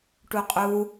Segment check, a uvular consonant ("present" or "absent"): present